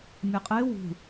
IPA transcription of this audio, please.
mʲeqʼe wṳ

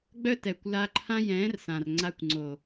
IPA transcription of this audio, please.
ɡ͡bœ˦tɛ˨kʷ la˧ǃʰã˦jɛ̃ː˨˦r sã˨rŋ͡ǀa˧kʷŋ͡ǀo˨

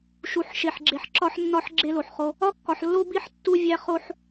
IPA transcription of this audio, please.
ʃu˨ħ ʃe˨ħɡ͡ǁe˨ħ ǁɒ˦ħnːɒ˦ħ ɡ͡ǁe˦lo˨ħχo˦ | ɒ˦˨kːɒ˨ħ lːo˦bi˦˨ħ tːu˦vʲæ˦ χo˦ħ

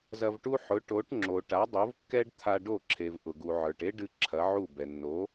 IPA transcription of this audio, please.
zɐ˧vʈu˥ ħʊ˩˥ʈo˩˥ʈŋ͡ǁo˩ ʈa˩˥dˤo˩˥vkːɛ˥ɖ t̪ʰa˧ɖo˥˩ǁʰe˩v ʔʊ˩ɡu˩ ʕə˞˩ʈe˥ɖɨ˧ ǁʰɐ˩˥ʕu˥˩bɛ˩ nːo˩˥

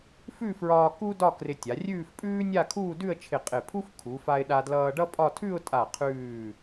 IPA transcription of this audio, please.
fʉ˥˧fɹɒː˧ ku˥dɒ˥˧ krɪ˧tʲa˩˧rʲʉː˥˧fpʼʉː˥ nʲa˥˧kʰuː˥˧dʉ˥˧ə̯t͡ʃʰɪ˧˩ qʼɪ˧˩pʰu˥fkʰu˩˧fa˧ɪ̯ ɗa˧dlʌː˧ɖʌ˥pʼɒ˥˧ tʰʉ˥˧ʊ̯tʼa˧˩qʰʉː˧˩

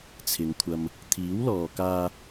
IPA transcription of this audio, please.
t͡sʰɪ˨˧ŋ kʷʰɐ˨m | t̪ʰiː˨˥wlɔː˨kaː˧

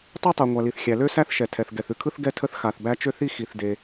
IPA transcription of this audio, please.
tˤe˥tˤe˩ ŋʷa˩li˩θxʲæ˩ lø˥sæ˥θʃɛ˩tʰɛ˩θ ɡɛ˩θʉ˥kʰɯ˥θ ɡɛ˥tʰə˥θxa˩θbæ˥ t͡ʃø˥θi˥ xi˩θ de˩

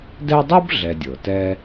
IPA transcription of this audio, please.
dɛ˦dˤo˥b ɮɛ˨dʲɤ˩tɛ˦

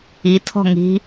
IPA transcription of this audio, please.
itʰɔ̤ ŋi̤

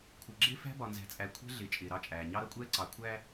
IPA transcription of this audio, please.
kʷʰə˨ɡ͡ǁɪ˦ fæ̤˦bɒ˨nzæ̤˨t͡sʼæ˨ kʷʰɛ̤˦ɮɪ˨ t͡ʃʼɪː˨ɾɑ˦t͡ʃʼæː˨ ɲɑ˦ɾʌ˦kʷʼɛː˦ ǀɑ˨ kʷʰæː˦

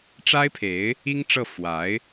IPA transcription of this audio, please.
ʈ͡ʂa˥ɪ̯pʰe˧˥ɪ̯ | i˥ŋʈ͡ʂɤ˥˩ fwa˧˥ɪ̯

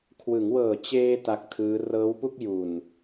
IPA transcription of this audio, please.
kʰwɯ˩˦ŋwɤː˨˩ t͡ɕeː˧ ta˦˥k̚tʰɯː˦˥ rɤː˦˥wpu˥˩k̚ju˨˩n

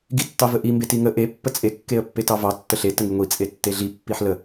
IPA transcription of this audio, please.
ɡitːɑvəʔi mbetiŋə ʔe pːət͡sʼe kːeə̯pːetɑvɑ tːəɬe təŋiŋʷi t͡sʼetːeɮi pːiħlə

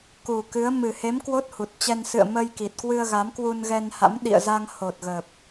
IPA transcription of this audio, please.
ku˨˩ kɨ˨˦ə̯ mɨ˨˩he˨˦m kwo˦˥t̚hu˨˩t̚t͡ɕɛ˧n sɨ̰˧˨ə̯ mə˧jki˨˩t̚kwɨ˧ə̯ ɣa˨˦mkwu˧nɣɛ˧nha̰˧˥m ɗḭ˧˨ə̯za˧ŋ ho˨˩t̚ ɣə˨˩p̚

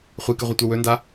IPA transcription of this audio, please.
χʷikɨʁʷɨtʷɐ wɵnda

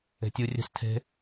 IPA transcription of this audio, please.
e̤tʲu rʲə̤s tʰe̤

